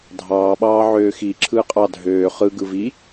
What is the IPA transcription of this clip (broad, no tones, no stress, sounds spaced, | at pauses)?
dʱ ɑː ɓ ɑː ʕ øː x i ǁʰ ɯː qʼ ɑ dʱ øː χ ɯ ɡ ɯ v i